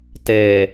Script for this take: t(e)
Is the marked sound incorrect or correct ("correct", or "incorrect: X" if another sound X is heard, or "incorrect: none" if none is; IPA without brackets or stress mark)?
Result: correct